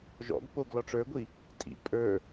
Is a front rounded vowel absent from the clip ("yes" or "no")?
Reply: yes